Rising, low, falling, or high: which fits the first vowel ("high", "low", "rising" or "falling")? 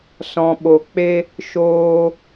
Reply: low